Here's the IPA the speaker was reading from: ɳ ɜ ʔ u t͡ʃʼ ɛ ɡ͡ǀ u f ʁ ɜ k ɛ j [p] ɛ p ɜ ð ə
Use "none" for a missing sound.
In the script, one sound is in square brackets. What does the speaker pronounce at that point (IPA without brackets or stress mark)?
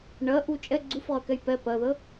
p